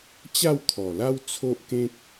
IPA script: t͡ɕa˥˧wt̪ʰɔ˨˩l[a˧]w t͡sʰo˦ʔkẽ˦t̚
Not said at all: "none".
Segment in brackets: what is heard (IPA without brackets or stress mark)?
a˦